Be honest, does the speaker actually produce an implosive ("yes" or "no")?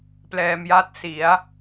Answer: no